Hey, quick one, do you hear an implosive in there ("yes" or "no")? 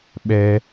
yes